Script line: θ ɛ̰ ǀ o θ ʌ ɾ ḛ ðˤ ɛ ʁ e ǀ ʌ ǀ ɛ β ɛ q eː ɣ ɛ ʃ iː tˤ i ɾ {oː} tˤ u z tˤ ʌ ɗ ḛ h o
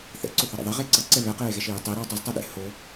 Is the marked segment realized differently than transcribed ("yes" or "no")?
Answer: no